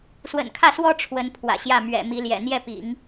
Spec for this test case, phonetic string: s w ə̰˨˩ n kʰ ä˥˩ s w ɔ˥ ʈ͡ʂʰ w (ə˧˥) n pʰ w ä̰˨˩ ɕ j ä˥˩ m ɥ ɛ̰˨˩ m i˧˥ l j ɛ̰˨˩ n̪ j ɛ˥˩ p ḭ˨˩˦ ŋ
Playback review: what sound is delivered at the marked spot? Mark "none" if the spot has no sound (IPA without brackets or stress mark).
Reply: ə˧˥